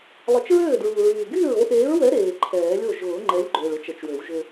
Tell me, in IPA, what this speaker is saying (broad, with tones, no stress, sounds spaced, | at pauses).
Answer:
lˠ ə˨˩˦ t͡ʃ ɹ øː˥˩ d ɹ u˨˩ ɹ yː˨˩ ɡ yː˥˩ ɹ o˨˥ ʔ eː˨˥ ɹ w ɛ˨˥ ɾ eː˨˩ ǃʰ ɛː˨˩˦ lʲ o˥˩ ʒ ʊː˨˩˦ ŋ͡ǃ ɛ˨˥ lʲ ɡ͡ǃ ø˨˩ ɭ ʊ˦ t͡ʃ ə˨˩˦ t͡ʃ w ø˨˩˦ w ʒ ʏ˦